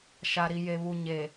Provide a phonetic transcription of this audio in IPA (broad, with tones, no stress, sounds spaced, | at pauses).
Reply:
ʃ a˨ ɾ i˨ j e˨ β u˨ ɲ e˨